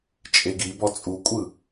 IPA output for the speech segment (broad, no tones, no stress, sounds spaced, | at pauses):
t͡ʃʼ e ɡ i b ɔ t͡sʼ u kʷʼ ɯ